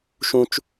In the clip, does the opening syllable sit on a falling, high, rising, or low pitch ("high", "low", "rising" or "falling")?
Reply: high